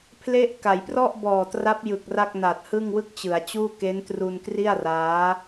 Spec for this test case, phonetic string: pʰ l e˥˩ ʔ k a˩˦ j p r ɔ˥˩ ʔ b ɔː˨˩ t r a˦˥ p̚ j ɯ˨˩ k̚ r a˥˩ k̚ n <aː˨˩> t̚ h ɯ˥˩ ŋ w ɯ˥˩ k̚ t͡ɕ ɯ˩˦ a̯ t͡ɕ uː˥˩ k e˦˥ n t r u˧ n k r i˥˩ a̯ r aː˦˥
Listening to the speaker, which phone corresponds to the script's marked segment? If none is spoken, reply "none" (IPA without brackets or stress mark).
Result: aː˨˩